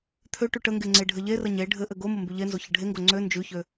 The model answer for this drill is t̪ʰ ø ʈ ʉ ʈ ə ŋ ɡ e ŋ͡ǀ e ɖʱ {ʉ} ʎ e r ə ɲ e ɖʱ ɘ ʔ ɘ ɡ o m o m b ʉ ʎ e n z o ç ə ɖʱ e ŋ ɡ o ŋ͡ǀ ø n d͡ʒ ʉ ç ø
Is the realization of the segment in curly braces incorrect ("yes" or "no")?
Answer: yes